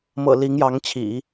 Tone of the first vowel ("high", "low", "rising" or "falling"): low